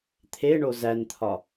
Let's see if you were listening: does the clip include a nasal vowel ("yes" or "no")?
no